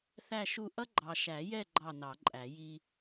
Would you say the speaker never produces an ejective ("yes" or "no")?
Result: no